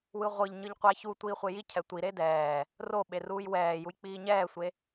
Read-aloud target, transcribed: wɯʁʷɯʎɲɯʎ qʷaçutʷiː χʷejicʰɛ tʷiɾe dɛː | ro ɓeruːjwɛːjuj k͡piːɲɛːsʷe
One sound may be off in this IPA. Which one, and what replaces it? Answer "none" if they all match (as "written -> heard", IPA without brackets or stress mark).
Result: none